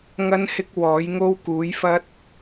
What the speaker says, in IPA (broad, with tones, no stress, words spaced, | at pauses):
ŋɐ˥nhɪ˥k̚ wɔː˨˥jŋo˥w kuː˨˥jfɐ˥t̚